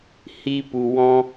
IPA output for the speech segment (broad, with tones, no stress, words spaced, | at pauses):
hi˧pu˨ wɔ̃˧